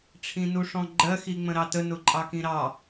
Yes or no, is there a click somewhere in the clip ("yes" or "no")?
yes